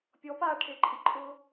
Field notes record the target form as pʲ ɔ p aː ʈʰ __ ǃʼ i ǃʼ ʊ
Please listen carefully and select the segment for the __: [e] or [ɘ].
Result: e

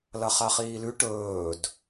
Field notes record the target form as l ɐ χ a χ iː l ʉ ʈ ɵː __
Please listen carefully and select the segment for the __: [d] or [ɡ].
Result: d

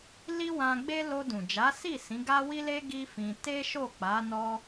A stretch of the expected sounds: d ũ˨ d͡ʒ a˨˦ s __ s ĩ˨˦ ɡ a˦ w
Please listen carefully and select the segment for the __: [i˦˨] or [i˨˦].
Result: i˦˨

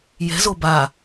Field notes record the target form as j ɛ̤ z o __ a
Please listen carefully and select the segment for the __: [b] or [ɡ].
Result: b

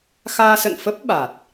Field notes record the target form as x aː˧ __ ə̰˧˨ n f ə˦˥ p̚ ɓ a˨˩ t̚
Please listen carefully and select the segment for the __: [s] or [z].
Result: s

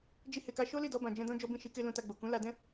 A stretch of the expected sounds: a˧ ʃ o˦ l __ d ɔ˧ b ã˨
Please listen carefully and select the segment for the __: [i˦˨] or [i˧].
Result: i˦˨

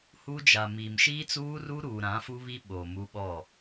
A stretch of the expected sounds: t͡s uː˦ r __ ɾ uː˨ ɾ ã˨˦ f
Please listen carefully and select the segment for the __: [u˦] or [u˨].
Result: u˦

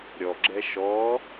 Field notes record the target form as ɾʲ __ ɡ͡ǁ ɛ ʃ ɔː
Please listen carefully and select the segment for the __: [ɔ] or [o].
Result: ɔ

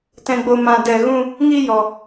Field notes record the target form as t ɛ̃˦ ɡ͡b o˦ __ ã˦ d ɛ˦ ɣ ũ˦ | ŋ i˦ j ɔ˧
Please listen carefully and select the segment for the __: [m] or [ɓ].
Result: m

